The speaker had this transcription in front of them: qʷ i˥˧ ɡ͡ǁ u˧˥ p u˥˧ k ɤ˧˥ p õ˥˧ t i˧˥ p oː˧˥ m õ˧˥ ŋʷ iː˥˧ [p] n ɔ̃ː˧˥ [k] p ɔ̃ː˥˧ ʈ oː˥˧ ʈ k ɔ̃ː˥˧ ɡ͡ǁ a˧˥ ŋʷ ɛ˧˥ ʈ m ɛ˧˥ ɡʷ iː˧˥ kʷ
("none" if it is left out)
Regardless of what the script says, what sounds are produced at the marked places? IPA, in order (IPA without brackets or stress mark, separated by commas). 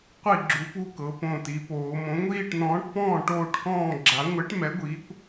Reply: ʈ, ʈ